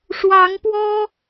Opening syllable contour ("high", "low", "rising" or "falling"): rising